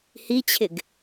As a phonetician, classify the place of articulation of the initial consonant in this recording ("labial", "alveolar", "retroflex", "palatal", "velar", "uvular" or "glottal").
glottal